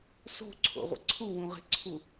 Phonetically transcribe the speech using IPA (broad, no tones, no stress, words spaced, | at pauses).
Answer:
so̤ǀʰo̰ʁʷə̰ ǀʰuwũʁe̤ǀʰu